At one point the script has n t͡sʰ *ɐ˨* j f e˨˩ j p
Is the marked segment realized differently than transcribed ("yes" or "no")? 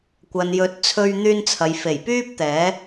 no